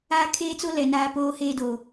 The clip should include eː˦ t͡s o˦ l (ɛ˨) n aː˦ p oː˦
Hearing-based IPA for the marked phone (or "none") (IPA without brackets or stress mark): ɛ˨